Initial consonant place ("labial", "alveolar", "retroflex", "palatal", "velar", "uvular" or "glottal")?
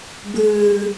labial